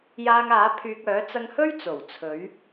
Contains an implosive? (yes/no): no